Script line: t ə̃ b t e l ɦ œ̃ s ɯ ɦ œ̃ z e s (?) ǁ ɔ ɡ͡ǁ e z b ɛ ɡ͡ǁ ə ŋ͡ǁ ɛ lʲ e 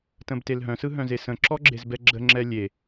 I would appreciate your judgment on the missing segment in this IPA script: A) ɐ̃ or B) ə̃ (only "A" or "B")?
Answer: B